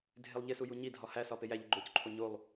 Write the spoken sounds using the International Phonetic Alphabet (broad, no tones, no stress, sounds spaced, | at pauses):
dʱ e lˠ ʎ e s u j u ɲ i dʱ ɒ h æ s ɒ p e j æ ʎ i ɡ͡ǃ o c ǃʰ o ɲ o lˠ